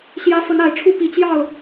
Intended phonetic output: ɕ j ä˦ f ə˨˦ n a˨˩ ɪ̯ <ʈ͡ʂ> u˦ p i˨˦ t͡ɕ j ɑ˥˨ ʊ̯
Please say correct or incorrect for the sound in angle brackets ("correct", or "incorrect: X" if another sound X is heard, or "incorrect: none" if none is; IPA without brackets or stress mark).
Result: incorrect: ʈ͡ʂʰ